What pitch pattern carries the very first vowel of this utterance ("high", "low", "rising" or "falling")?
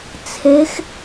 rising